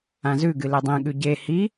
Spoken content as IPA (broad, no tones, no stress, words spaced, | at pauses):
ãzʉɡɨ ledˤẽɠʉ ɟe hi